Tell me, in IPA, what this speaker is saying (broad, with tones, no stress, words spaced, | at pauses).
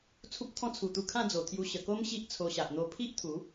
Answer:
t͡sʰu˦p̚t̪ʰɔ̃˦ t͡sʰu˨˩t̪u˧kʰã˥˧ d͡zo˨˩t̪ʰju˧ ɕə˨˩ko˦m ɕi˦ʔt͡sʰo˧ɕa˨ʔ n̪o˧pʰi˦ʔt̪ʰu˨˦